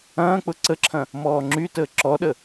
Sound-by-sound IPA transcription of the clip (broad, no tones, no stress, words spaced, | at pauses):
ɐ̃ːk͡pʊ ǀəǁʰɐ̃ | mɔːŋ͡ǁytəː ǁɔɗə